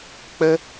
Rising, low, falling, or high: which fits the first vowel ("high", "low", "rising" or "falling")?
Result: high